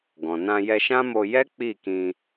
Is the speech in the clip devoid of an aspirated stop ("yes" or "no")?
yes